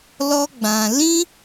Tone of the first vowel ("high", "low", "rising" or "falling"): high